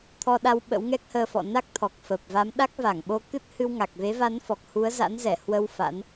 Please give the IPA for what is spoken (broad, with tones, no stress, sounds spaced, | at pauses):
t̪ʰ ɔ˧ ɗ a˧ w ɓ ə̰˧˥ w ŋ ɛ˦˥ k̚ h əː˧ f ɔ̰˧˨ n a˦˥ k̚ t̪ʰ ɔ˨˩ k̚ f ə˨˩ p̚ v a˨˦ m ɗ a˦˥ k̚ v a˧˩ ŋ ɓ o˧ k ɨ˦˥ t̚ h ɨ˧ w ŋ a˨˩ k̚ v e˨˦ v a˨˦ n f ɔ˨˩ k̚ h u˨˦ ə̯ z a̰˧˥ n z ɛ˧˩ h w ə˧ w f a̰˧˥ n